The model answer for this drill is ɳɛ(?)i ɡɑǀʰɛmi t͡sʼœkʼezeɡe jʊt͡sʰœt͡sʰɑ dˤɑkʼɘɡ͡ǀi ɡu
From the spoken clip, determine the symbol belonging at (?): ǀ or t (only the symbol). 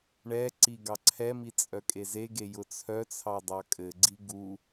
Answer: ǀ